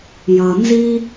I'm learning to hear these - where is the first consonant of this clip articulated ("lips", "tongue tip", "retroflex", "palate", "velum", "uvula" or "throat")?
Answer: palate